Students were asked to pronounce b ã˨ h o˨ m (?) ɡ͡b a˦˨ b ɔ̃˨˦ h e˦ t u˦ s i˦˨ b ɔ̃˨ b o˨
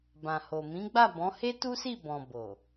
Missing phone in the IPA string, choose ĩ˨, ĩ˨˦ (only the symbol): ĩ˨˦